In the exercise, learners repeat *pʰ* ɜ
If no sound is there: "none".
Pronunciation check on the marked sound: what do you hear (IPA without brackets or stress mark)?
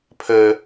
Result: pʰ